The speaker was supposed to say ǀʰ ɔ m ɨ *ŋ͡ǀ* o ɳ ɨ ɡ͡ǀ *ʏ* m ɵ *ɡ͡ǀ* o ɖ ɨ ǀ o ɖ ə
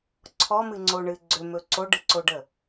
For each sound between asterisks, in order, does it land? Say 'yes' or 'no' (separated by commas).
yes, yes, no